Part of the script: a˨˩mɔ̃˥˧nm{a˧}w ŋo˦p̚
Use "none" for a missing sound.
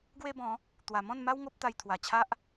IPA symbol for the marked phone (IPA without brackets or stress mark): a˦